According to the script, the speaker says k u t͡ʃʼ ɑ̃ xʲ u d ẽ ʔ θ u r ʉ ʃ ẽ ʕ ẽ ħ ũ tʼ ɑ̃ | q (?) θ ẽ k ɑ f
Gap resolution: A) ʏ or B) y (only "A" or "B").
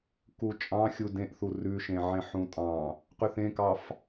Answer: B